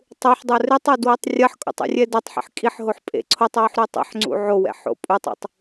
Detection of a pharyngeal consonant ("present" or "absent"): present